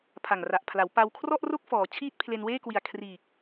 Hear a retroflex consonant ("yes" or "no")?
no